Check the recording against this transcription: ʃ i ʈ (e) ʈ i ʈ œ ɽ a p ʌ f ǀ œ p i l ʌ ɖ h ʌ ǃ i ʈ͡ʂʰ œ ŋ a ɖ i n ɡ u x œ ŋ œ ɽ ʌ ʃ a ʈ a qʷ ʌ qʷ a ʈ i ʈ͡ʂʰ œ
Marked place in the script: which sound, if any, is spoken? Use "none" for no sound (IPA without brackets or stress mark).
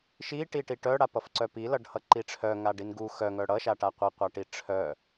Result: i